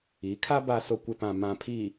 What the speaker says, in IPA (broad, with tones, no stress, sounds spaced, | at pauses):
i˨˦ kʰ a˦ b a˨ s o˨ kʷ ɪ˨ p ã˨ m ã˨ pʰ iː˨